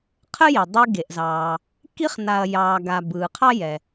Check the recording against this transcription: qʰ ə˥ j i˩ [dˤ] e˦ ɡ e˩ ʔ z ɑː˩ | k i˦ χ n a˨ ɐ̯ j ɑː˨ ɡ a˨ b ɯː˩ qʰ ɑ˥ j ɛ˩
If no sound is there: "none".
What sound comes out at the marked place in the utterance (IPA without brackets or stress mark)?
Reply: dˤ